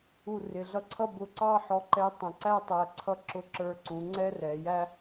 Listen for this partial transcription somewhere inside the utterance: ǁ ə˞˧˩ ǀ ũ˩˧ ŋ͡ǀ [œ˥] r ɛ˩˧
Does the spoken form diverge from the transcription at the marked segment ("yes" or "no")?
yes